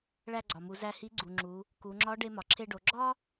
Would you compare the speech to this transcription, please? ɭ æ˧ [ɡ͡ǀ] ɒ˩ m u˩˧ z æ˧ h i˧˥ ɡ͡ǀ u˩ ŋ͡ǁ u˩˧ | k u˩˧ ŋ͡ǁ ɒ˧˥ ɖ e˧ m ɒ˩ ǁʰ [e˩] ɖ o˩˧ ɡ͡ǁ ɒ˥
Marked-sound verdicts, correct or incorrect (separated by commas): correct, incorrect